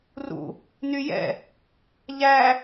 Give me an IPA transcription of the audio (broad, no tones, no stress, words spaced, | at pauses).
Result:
rṵ | nyjɛ̰ | ʎæ